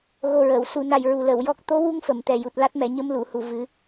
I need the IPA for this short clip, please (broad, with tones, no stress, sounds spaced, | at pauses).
ɣ o˨˩ ɹ ə˨˩˨ w s u˨˩˨ n a˨˩ j ɹ u˨˩ l ə˨˩˨ w j ɔ˦˥ k̚ t̪ o˧˥ w u˧ ŋ f ə˨˩˨ m t̪ ɛ˨˩ j u˨˩ t̚ l a˦˥ t̚ m ɛ˨˩˨ ɲ ə˧ m l u˨˩˨ h u˨˩ v ɨ˨˩˦